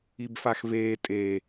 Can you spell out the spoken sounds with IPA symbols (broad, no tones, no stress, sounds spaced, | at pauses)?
i b f a x v eː tʼ e